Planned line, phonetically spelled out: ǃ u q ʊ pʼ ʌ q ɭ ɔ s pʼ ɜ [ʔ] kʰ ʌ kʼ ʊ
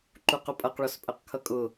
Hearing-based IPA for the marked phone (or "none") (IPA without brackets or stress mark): q